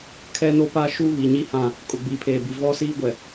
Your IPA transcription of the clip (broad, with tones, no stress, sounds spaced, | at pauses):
kʰ ɛ˦ n o˦ p a˦ ʃ u˦ β i˨ ɲ i˦ h ã˦˨ | kʼ ʊ˨ ɡ͡b iː˨ pʰ eː˨ b i˨ v ɔ˦ s iː˦ ɡʷ ɛ˨